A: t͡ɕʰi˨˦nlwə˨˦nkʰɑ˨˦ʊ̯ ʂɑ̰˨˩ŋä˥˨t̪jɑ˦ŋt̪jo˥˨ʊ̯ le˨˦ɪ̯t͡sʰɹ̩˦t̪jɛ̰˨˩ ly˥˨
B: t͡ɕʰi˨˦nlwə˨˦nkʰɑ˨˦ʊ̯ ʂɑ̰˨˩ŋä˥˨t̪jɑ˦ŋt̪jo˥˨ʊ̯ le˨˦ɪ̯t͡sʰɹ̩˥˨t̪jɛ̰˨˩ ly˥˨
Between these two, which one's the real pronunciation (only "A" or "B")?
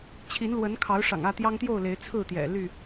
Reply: B